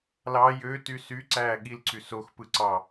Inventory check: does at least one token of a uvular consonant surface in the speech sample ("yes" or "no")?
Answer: no